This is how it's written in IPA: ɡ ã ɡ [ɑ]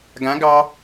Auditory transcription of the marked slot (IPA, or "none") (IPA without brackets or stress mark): ɑ